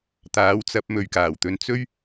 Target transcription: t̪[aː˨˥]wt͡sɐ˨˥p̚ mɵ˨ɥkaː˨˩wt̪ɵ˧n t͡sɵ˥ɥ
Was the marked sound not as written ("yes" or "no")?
no